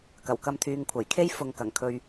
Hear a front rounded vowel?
yes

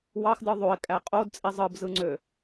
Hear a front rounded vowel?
yes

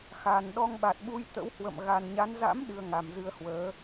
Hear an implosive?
yes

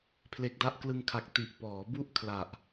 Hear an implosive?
no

